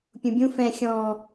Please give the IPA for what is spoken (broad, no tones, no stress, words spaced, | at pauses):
pʲũbʲũ fɛ̃ xʲɔ̃ː